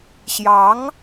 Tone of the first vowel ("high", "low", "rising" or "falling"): rising